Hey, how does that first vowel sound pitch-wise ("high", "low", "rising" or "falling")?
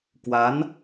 rising